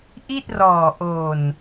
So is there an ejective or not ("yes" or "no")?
no